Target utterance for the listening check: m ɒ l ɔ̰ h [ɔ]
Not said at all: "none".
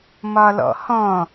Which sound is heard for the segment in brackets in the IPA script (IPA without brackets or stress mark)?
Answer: ɔ̃